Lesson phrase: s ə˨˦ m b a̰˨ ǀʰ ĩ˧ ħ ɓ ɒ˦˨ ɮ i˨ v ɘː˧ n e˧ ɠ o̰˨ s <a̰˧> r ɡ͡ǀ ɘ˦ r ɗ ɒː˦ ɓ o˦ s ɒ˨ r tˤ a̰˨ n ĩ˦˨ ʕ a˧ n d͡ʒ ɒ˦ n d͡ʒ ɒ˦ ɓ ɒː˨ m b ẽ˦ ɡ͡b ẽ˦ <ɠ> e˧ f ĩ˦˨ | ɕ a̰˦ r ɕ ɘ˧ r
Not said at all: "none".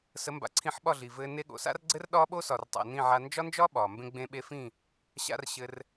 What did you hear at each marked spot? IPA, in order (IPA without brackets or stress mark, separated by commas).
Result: a̰˦, ɓ